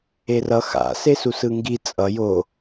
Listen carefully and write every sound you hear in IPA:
e r ʌ x a̰ s e s u s ɯ ŋ ɡ i t͡sʼ ʌ j o

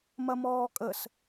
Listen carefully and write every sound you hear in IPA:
m ɐ m ɔː kʼ ə s

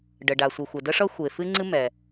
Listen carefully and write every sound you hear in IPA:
ɖ ə˩ ɖ a˩ sʷ ɨ˩ xʷ ɛ˩ d ə˥ ʂ ʌ˥ xʷ e˩ f ɨ˥ ŋ͡ǀ ɨ˥ m ɛ˩

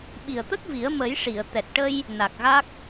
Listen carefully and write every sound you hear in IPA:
ɓ i˨˩ ə̯ t̪ ə˦˥ k̚ v i˨˩˦ ə̯ m ə˨˩˦ j ʂ i˨˩˨ ə̯ t̪ ɛ˨˩ t̚ ʈ ə˧ j | n a˨˩ k̚ ɣ a˦˥ k̚

